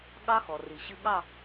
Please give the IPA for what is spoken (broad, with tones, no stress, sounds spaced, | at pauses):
ɠ ɑ˦˥ x ɔ˩ r i˩ ɕ ɨ˧ ɠ ɑ˥˧